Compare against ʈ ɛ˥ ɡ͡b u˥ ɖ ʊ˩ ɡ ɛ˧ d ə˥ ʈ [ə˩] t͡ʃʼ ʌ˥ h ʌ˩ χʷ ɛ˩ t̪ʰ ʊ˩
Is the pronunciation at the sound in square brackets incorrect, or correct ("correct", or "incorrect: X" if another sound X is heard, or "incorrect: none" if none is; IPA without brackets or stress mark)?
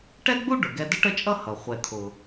incorrect: ə˥